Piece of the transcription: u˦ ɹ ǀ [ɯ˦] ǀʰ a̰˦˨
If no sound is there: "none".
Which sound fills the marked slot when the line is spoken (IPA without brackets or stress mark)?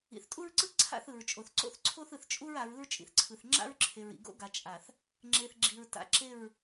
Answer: ɯ˦